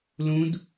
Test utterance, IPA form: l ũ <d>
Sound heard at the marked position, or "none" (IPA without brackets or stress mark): d